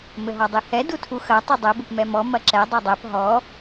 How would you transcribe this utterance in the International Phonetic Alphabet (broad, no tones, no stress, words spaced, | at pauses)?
mɘɦɔdˤihɛ dutʰu xɐ tˤidˤɘ bɘpmɛmɔ mɐǁɛ dˤɛdˤɛp ɦɔ